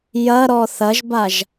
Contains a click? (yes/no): no